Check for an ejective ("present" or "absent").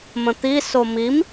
absent